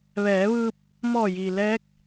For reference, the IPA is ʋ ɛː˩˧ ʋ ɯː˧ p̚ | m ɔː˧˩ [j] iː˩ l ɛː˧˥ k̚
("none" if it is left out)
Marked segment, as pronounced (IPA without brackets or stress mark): j